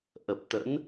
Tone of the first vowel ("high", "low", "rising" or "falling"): low